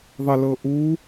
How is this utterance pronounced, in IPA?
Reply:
ðˤ ɪ l ɤ ʔ u

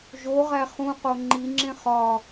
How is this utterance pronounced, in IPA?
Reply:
ʒ o ʁ æ χ ũ q o ŋ͡ǃ i ŋ͡ǁ ẽ χ ɒ

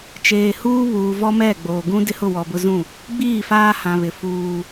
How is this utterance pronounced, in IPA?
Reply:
t͡ʃ eː˨ h uː˦ β uː˨ v ɔ˦ m ɛ˦˨ ɡ͡b oː˨ ɡ ũ˦ d ɪ˦ h ʊ˦˨ w ɔ˨ b ʊ˦ z ũ˦˨ | ɡ͡b iː˦˨ f aː˦ h ã˨ β ɪ˨ f uː˦

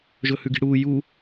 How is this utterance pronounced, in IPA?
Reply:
ʒ ɵ h ʉ ɡ i̤ ɽ uː j u

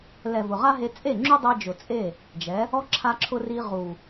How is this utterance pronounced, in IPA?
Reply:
l ɛ˨ v ʊ˨ ʁ a˦ ɦ e˧ t͡sʼ e˦˨ ŋ͡ǁ u˦ dˤ e˧ d͡ʒ ʊ˨ t͡sʼ e˦˨ | d͡ʒ ɛ˨˦ | ɔ˧ ǁʰ a˧ ǁʰ ʊ˧ r i˧ ʁ u˨

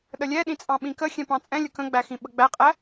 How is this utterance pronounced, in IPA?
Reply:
ɗ ə lʲ ɛ ɗ ĩ t͡sʼ ɑ̃ ɓ ĩ k ə xʲ ɛ̃ p ɑ̃ t͡sʼ ɛ̃ lʲ ə k ə̃ ɡ͡b æ x ĩ ɓ ə ɡ͡b æ qʼ æ

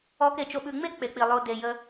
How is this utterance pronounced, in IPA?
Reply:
ɔ˨˦ k e˨ t͡ʃ o˨ ɓ ʉ˨ ŋ͡m e˦˨ k͡p e˨˦ k͡p i˨ lˠ o˧ d e˨ j ə˧

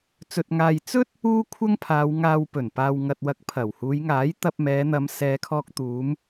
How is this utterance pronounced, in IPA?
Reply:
t͡s ɵ˧ t̚ ŋ aː˧ j t͡s ɵ˥ t̚ | uː˥ kʷʰ ɐ˥ ŋ pʰ aː˨˧ w ŋ aː˧ w p ɵ˨˩ n p aː˨ w ŋ ɐ˨ t̚ w ɐ˨˥ k̚ pʰ ɐ˨˩ w h uː˨˧ j ŋ aː˨˥ j t̪ ɐ˧ p̚ m ɛː˨˧ n̪ ɐ˨˧ m s ɛː˨˧ kʰ ɔː˧ k̚ t̪ uː˨˧ m

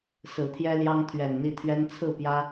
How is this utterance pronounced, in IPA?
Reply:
s ɹ̩˨˦ t̪ʰ j ɛ˦ l j ɑ˦ ŋ t̪ʰ ɥ ɛ˨˩ n n̪ i˥˨ t̪ʰ ɥ ɛ˦ n t͡sʰ ɹ̩˥˨ p j ä˦

